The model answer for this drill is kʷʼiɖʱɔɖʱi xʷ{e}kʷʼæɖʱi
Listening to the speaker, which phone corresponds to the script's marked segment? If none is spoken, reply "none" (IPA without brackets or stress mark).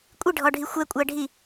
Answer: ɛ